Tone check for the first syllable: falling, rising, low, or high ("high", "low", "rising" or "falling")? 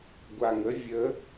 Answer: low